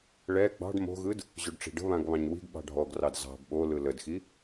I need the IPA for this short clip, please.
ɭ ɛ ɡ͡b ɑ̤ ɖ m o̤ ɣ ɯ d | ʑ o ɖ ʈ͡ʂ i̤ ɖ ə̤ β ã ɡ β ɑ̃ ɲ w i̤ ɡ ɓ ɑ̤ ɖʱ ɔ ɡ r ɑ d z ɑ̤ b ɓ o l ɯ l ə d x i

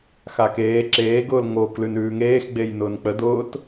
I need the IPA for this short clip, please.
x a k eː ǁ eː ɡ ʊː l ŋ o k l ʉ n ʉː ŋ eː x ɡ͡b e j n ʊː n k͡p ə d ʊː t

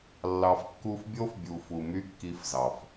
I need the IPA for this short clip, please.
lː ɑ˨ f kː u˧ f bʲ o˦ f bʲ u˨ f u˨ m y˦ kː i˧ f z ɑ˨ f

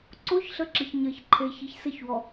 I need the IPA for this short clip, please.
ǀ o ç ɬ ə ǁ ə ç ɲ ɜ ç ǃʰ e ç i ç s ɘ ç w ɔ

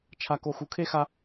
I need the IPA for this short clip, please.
t͡ʃʰ a˦ k o˦ x u˧ kʰ e˦ x a˦

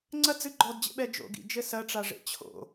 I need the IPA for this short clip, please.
ŋ͡ǀ ɐ d͡z ɨ ɡ͡ǃ ɔ d d͡ʑ ḛ ɓ ɛ d͡ʒ o̰ ɡ ḭ d͡ʒ ɘ s ɐ ʈ͡ʂ a ʐ ḛ t͡ɕʰ o̰

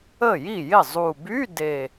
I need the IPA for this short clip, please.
ə˥˩ j i˥˩ j ɪ˥˩ zˤ u˨˩ b y˧˥˧ d e˨˩

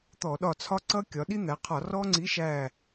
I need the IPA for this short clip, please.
t̪ ɔ˧˩˧ ɗ ɒ˧˩ t͡sʰ ɒ˦ ǀ ʌ˦ kʲ ɒ˩˧ ɗ i˦ n̪ æ˩˧ qʰ ɒ˧˩˧ r ɔ˦ ŋ͡ǀ i˨˥ ʃ æ˧˩

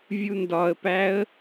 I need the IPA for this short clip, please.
vʲ u n d ɒ ə̯ p æ ə̯

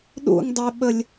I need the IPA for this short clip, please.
ɗ ṵ ŋ dˤ ɛ ɓ ə lʲ

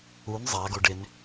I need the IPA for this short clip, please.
u n zˤ a ɡ o ɖ ɪ n

